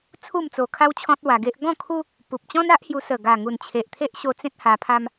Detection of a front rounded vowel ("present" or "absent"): absent